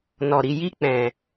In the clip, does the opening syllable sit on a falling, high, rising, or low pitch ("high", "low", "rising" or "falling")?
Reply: low